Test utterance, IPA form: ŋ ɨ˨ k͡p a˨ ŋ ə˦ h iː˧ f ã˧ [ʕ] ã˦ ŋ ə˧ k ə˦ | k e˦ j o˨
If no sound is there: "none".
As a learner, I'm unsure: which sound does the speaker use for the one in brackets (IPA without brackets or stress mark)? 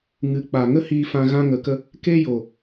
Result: ɣ